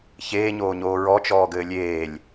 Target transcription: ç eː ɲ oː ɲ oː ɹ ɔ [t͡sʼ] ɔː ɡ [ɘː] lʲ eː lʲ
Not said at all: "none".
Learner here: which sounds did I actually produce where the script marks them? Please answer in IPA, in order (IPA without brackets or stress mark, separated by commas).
t͡ʃ, ɘː